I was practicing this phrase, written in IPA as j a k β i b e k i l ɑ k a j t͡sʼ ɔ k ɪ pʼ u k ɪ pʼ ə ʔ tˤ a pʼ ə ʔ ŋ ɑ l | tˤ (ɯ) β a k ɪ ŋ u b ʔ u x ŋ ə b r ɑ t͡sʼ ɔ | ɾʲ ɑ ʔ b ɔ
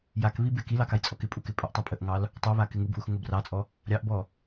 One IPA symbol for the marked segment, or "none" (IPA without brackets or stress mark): u